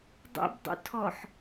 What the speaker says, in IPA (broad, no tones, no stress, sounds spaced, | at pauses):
dˤ ṵ b dˤ ṵ tʰ ɔ ħ